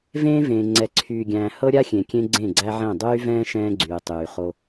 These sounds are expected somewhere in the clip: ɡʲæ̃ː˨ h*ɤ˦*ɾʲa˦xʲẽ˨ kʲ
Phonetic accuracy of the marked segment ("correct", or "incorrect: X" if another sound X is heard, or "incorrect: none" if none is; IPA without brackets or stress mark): correct